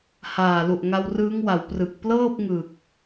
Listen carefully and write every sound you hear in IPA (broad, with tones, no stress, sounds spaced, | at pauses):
h aː˨˩ l u˨˩ ʔ ŋ a˧ w r ɯː˦˥ ŋ w a˩˦ w p r ɯ˨˩ k̚ p l ɤː˥˩ p̚ ŋ ɯ˨˩ k̚